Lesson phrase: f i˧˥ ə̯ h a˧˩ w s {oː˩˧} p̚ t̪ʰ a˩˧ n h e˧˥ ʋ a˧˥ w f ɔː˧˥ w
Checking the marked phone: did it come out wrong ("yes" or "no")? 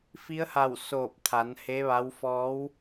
yes